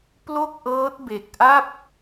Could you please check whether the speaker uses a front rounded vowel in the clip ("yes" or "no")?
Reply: no